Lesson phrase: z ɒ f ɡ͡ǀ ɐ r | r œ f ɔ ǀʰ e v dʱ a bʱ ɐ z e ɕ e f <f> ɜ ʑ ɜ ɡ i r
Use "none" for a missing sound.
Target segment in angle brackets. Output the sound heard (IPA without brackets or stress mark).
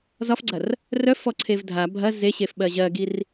ɓ